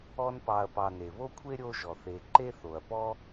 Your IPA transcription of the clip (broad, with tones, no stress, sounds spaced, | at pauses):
ɔ˦ n p ɑ˨ ɐ̯ p ɑ˨ n e˩ β o˥ kʷʰ e˥ ɾʲ o˥ ʒ ɔ˩ θ e˨ ǃ e˥ θ o˩ ɐ̯ p ɔ˥